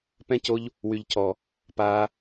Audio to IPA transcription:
p ɛ̃˧ c o˧ ʎ | w y˨ ʎ cʰ ɔ˨ | p aː˧

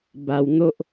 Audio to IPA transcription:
b a˨˩ w n̪ o˦ ʔ

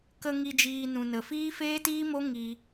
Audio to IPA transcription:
k ə˧ ŋ i˧ d͡ʒ iː˧ n ũ˨ n ə˨ f iː˦ f eː˦ t iː˦ m o˦ ŋ i˧

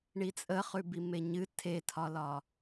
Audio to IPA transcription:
ɳ i t͡sʼ ə χ ʉ b i m e ɲ ɨ tʰ e tʰ ɒ l ɒ

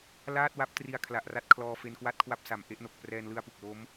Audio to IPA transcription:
l aː˥˩ t̚ w a˦˥ p̚ t r i˧ a̯ kʰ l a˨˩ ʔ r a˦˥ t̚ kʰ l ɔː˧ f e˧ n k w a˥˩ t̚ kʰ w a˥˩ p̚ s a˨˩ m ʔ e˥˩ ʔ n o˨˩ k̚ p r ɛː˧ n l ɯ˧ a̯ p u˨˩ k̚ l o˦˥ m

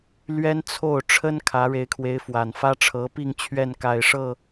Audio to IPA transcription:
l ɥ ɛ˥ n t͡sʰ o˥˩ ʊ̯ ʈ͡ʂʰ ə˥ n kʰ ä˧˥ ɻ e˧˥ ɪ̯ kʰ w e˧˥ ɪ̯ f w a˨˩ n f ä˥ ʈ͡ʂʰ ɤ˧˥ p i˥˧ ŋ t͡ɕʰ ɥ ɛ˥˩ n k a˨˩ ɪ̯ ʂ ɤ˥˩

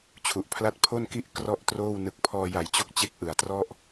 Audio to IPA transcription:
t͡ɕʰ u˨˩ ʔ pʰ l a˦˥ t̚ pʰ o˥˩ n k i˥˩ ʔ k r ɔ˥˩ ʔ t r oː˥˩ w n ɯ˨˩ k̚ pʰ ɔː˧ j a˨˩ j t͡ɕ o˦˥ k̚ t͡ɕ e˦˥ k̚ ʔ ɯ˨˩ a̯ t r ɔ˥˩ ʔ

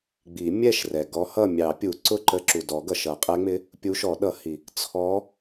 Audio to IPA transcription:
ɡ͡b i˨˩˦ mʲ ɛ˥˨ ʃ r ɛ˩ ɡ ɔ˧˥ h ʌ˥˨ mʲ ɑ˨˩˦ pʲ u˨˩˦ ǀ ʊ˥˨ ǃ ə˧˥ ǁ u˩ d ɔ˨˩˦ ɡ ʌ˩ ʃ ʌ˨˩˦ qʼ ɛ˧˥ ŋ͡m ɪ˧˥ | pʲ u˧˥ ʃ ɔ˨˩˦ ɗ ʌ˨˩˦ h i˩ | t͡sʰ ɔ˧˥

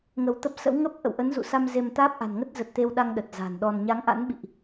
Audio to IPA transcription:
ŋ ə˧ w t̪ ə˦˥ p̚ s ə̰˧˥ w ŋ ə˦˥ p̚ ʔ ə̰˧˨ w ʔ ə˨˦ n z ṵ˧˨ s a˧ m z e˧ m t̪ aː˦˥ p̚ ʔ a̤˨˩ n ŋ ə˦˥ t̚ z ə˨˩ t̚ t̪ e˧ w ɗ a˧ ŋ ɗ ə˨˩ t̚ z a̤˨˩ n ɗ ɔ˧ n ɲ a˨˦ ŋ ʔ a̰˧˥ n ɓ ḭ˧˨ ʔ

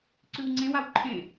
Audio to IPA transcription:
ǀ ʉ w ŋ͡ǀ ẽ w a w ǃʰ ẽ

